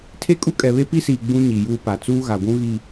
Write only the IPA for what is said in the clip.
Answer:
tʰ e˦ kʼ u˦ kʼ ɛ˨ β e˦ p i˦ s iː˨ ɡ͡b ũ˦ ɲ i˨ j uː˦ p a˨ t͡s uː˦ ɣ a˨ ɡʷ ũ˦ ɣ i˨

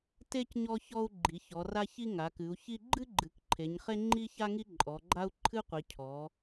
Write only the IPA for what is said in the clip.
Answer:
t e˦ c ɲ ɔ˦ ç ɔ˦ u̯ ɡ͡ǃ i˩˧ ç ɔ˩˧ r a˦ ç i˦ ŋ a˩˧ k ɨ˩˧ u̯ ç i˦ ɡ͡ǃ ɨ˦ ɡ͡ǃ ɨ˩˧ k ǃʰ e˩˧ ɲ χ e˦ ŋ͡ǃ i˦ ç a˦ ŋ i˦ ǃʼ ɔ˩˧ ɡ͡ǃ a˦ u̯ ǃʰ ɨ˦ qʷ i˩˧ cʰ ɔ˩˧

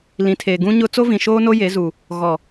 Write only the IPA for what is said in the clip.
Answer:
l ĩ˨ tʰ eː˨ ɡ ũ˦ ɲ ʊ˦ t͡s o˦ v ĩ˨ ʃ oː˦ n o˦ j e˨˦ z u˨ | ɣ ɔ˨

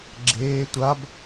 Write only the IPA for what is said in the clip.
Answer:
ɡ͡ǁ eː tʷ a b

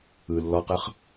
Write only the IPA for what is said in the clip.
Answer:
ɯ lː ɔ q ɯ χ

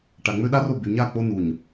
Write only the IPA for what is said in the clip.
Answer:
ʈ a˨ ŋ͡m ø˦ ɗ a˦ r o˦˨ b y˨ ɲ a˦˨ k͡p o˦ n u˨ ɲ

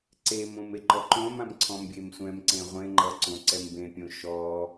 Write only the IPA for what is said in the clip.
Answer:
ǀ e m õ m e ǃ ɔ ǃ õ m ã m ǀʰ ɔ̃ m bʲ e m sʷ ɛ̃ m ǀ ẽ ʁʷ ẽ ŋ͡ǃ ʌ ǀ õ ǀ ɛ m b ẽ pʲ õ ʃ ɔ

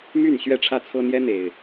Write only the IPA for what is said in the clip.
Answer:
m y˥˨ n ɕ ɥ ɛ˥˨ ʈ͡ʂʰ ä˥˨ t͡sʰ ɤ˦ n̪ j ɛ˦ n̪ e˨˩ ɪ̯

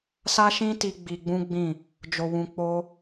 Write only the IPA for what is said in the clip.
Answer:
s a˦ ʃ ĩ˦ t i˧ ɡ͡b i˧ ɡ͡b ũ˦ ɡ͡b ĩ˦˨ | d͡ʒ o˧ w ũ˧ k͡p o˦

